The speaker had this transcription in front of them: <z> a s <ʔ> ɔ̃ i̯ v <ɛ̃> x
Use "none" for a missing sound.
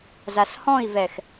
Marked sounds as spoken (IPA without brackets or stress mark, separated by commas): z, h, ɛ